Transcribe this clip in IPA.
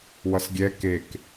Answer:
w ʌ s ɡʲ ɛ k e k

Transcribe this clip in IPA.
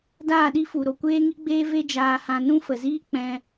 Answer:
d aː˦˨ ɗ i˦ f u˨ ɾ o˨ kʷ eː˦ ŋ i˦ ɡ͡b eː˦ v e˦ d͡ʒ aː˧ h ã˧ n ũ˦ f ə˨ z iː˦ k͡p ɛ̃˧

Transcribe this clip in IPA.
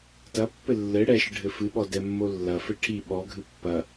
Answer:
t ɐ pː ɘ lː ɘ ɽ ɛ ʃ ɨ ɖʱ ɘ f ɨ ɓ ɔ d ɛ mː o lː ɐ f ɘ ʈʰ i ɓ ɔ ɡʱ ɨ pː ɐ

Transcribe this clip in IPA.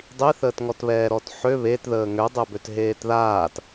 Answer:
dˤ i θ əː t ŋ ɔ t β ɛː ɾ ɔ t ħ ø β e t ð əː ŋ ø dˤ ø b ø t ɦ eː t ð aː t

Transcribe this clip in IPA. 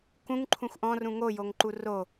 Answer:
k ũ ŋ ǃʰ ũ xʷ ʔ ɔ̃ r ũ ŋ o j o ŋ ǃ u r o

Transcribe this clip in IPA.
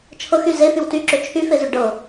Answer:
t͡ʃʰ ɤ x y z e f y w t y ǁ ʏ t͡ʃʰ y f e z y ɖ ɤ

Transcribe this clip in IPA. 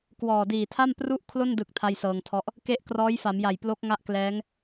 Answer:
k w ɔː˨˩ d iː˨˩ tʰ a˥˩ m p r u˥˩ ʔ kʰ l o˥˩ n d ɯ˨˩ k̚ tʰ a˥˩ j s ɤː˧ ŋ tʰ ɔ˥˩ ʔ | k e˥˩ ʔ k r ɔː˦˥ j f a˩˦ m j a˨˩ j p l o˦˥ k̚ ŋ a˥˩ ʔ k l ɛː˦˥ ŋ

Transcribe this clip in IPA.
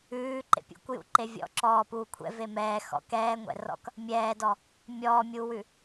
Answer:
ʉː ǃ ḛ pʲ ṵ kʷ j ṵ ǃ e vʲ ɔ̰ ǁ ɔː p uː kʷʰ ɛ̰ v e m ɛː x ɔ̰ k ɛː ŋʷ ɛ̰ r ɔ̰ k | mʲ ɛː d ɔ | mʲ ɔː mʲ uː w ʉ

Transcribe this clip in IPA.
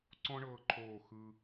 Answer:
ǀ ɔ̃˥ ɳ ɤː˧ ǃʰ oː˧˩ x ɯ˧

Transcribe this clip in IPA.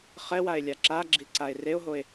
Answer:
χ ɛ w a e̯ lʲ a ǁ a ɡ͡ǁ i ǀ a e̯ r e o̯ ɦ o e̯

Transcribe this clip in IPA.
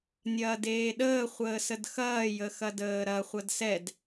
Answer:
nʲ ɐː d eː ɗ əː χʷ əː s ə d x ɐː j ə x ɐ d əː ɾ ɐ χʷ ɐ d s ɛ d

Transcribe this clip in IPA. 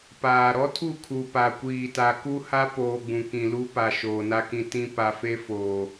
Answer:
p aː˨ ɾ ɔ˦ tʰ u˦˨ kʰ u˨ p a˨ kʷ iː˨ t a˨ k u˦ h a˦ p oː˨ ɡ͡b ũ˨ k ĩ˨ l u˦ p a˨ ʃ oː˨ n a˦ k ĩ˦ t ĩ˦ p a˨ f e˦ f oː˨

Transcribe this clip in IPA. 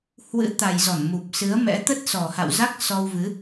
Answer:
h w ɨ̰˧˥ t̪ a˨˩ j z ɔ˧˩ n m u˨˩ p̚ s ɨ˨˦ ə̯ m ɛ̰˧˥ t̪ ə˦˥ t̚ s ɔ˨˩ h a̰˧˨ w z a˦˥ k̚ s ɔ˧ w v ɨ˨˦

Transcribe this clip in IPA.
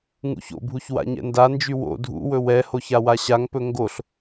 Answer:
ŋ ṵ ç o̰ bʱ u ç w a̰ ɲ ɛ̰ n d a n d͡ʒ y w o̰ dʱ ṵ w ɵ w ɛ h o ç a w a ɕ a ŋ p ɵ ŋ ɡ o ɬ

